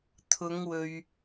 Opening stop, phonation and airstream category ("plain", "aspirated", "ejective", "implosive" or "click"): aspirated